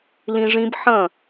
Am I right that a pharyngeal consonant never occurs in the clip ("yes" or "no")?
no